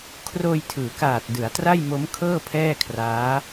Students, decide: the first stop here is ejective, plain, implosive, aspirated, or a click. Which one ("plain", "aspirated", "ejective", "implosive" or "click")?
aspirated